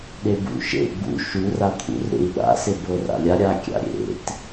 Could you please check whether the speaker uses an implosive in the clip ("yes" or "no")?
yes